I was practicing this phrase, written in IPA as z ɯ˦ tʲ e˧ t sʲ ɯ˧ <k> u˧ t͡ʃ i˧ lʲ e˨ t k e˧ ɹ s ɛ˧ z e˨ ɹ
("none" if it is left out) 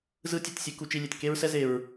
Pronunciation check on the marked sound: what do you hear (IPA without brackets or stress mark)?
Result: k